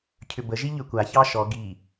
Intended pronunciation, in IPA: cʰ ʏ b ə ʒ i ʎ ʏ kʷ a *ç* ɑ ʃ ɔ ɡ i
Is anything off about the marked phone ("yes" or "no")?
no